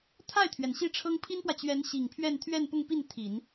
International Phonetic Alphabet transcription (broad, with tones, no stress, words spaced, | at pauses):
t̪ʰa˥˩ɪ̯t̪ʰɥɛ˩n ɕi˥˩ʈ͡ʂʰɤ˥ŋ pʰi˥npwä˨t͡ɕɥɛ˧˥n ɕi˨˩ŋpʰɥɛ˥˧n t̪ʰɥɛ˥˧npʊ˥˧ŋpi˥˩n t̪ʰi˨˩˦n